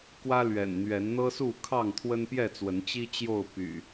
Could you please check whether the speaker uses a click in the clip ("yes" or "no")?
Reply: no